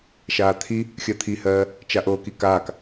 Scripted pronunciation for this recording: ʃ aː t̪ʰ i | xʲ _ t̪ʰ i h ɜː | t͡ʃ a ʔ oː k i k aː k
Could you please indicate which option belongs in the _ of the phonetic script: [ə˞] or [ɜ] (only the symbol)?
ɜ